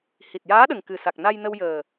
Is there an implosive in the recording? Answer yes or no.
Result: yes